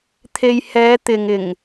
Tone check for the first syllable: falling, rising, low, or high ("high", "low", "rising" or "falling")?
low